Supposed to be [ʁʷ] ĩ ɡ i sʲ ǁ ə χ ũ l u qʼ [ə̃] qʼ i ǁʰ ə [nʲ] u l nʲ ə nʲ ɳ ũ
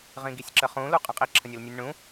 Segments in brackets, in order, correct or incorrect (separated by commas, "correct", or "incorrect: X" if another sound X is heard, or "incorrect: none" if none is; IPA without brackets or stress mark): incorrect: ʁ, correct, correct